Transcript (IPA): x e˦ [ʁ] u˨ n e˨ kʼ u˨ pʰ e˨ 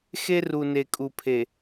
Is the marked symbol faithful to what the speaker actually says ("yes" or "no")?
no